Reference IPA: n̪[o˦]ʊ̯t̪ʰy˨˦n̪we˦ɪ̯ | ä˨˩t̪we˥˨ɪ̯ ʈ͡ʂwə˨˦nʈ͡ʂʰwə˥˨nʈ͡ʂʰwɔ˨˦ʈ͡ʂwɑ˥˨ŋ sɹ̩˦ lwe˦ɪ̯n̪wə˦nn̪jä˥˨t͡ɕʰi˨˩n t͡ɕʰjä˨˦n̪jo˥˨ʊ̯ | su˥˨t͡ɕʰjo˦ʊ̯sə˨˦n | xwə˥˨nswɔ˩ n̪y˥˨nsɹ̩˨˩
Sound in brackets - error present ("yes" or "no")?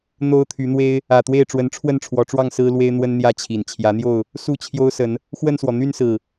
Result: no